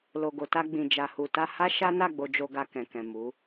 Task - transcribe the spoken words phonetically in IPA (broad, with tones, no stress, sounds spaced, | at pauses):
l o˨ ɡ o˨ t a˧ ɡ͡b ĩ˨ d͡ʒ a˨ h u˨ t a˧ h a˦ ʃ a˦ n a˦˨ ɡ͡b o˧ d͡ʒ o˧ ɡ a˧ k ɛ̃˨ k ɛ̃˨ m u˨˦